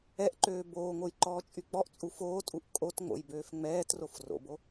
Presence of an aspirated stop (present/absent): absent